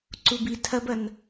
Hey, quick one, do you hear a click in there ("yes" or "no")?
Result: yes